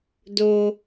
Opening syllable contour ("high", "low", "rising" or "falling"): low